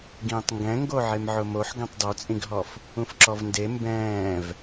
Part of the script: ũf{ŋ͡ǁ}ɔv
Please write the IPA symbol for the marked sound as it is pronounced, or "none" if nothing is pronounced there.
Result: ǁ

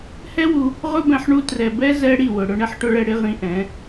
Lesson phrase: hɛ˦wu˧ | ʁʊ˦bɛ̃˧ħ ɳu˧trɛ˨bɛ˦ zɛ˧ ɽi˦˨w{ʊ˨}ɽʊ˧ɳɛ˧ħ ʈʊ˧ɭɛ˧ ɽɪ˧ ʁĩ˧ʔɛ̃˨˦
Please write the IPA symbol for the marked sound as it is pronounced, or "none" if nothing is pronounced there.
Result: ʊ˨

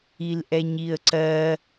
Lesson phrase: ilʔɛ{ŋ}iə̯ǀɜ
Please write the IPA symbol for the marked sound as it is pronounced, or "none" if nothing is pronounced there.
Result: ɲ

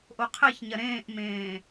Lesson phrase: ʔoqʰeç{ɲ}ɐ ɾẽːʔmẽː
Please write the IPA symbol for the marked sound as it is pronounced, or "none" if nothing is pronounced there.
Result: ɲ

